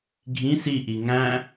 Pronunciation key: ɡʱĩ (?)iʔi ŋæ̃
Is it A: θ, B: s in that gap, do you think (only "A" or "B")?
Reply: B